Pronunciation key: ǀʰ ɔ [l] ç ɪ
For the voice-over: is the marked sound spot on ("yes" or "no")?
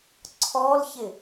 yes